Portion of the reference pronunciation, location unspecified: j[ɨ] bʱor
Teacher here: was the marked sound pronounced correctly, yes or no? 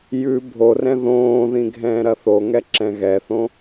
no